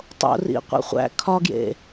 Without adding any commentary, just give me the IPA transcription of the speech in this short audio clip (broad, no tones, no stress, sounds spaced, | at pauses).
tˤ o̰ r ḭ qʷ ḭ χʷ æ̰ kʰ ɒ ɡ j ḛ